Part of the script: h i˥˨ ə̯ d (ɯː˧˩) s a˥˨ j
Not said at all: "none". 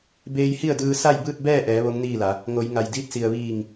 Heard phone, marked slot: ɯː˧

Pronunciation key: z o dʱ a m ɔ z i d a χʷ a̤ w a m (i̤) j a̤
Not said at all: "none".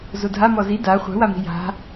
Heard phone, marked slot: i̤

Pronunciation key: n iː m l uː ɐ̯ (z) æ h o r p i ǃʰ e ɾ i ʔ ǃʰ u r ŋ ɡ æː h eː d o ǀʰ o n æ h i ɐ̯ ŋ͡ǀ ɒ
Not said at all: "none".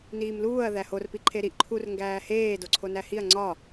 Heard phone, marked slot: ð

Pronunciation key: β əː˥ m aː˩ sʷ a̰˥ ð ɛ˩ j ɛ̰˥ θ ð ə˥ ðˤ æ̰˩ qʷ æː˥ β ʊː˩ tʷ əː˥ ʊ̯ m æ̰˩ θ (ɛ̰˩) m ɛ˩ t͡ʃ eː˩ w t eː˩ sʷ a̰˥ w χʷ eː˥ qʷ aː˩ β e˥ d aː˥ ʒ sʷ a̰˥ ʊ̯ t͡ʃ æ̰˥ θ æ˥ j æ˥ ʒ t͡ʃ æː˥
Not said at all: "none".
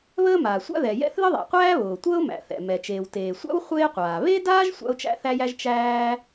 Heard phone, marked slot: ɛ̰˩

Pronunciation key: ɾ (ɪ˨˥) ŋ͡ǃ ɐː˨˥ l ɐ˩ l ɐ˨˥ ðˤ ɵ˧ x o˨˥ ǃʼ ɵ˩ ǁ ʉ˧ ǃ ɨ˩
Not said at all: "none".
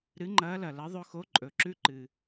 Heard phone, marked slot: ɨ˨˥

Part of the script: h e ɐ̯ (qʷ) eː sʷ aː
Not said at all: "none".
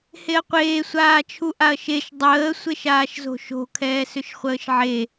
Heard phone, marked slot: qʷ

